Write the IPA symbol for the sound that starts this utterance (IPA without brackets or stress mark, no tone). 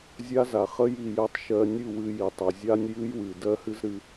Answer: zʲ